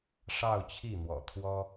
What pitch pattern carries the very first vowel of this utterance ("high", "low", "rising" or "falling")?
falling